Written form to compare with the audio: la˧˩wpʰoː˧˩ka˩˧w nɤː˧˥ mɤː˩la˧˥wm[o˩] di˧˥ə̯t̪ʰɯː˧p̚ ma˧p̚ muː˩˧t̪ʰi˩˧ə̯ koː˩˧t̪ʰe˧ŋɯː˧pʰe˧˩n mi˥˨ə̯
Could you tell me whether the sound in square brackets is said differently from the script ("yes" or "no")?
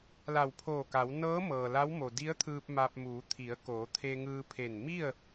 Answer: no